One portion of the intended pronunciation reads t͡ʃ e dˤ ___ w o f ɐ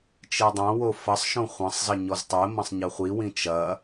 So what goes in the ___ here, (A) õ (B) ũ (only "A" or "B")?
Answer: A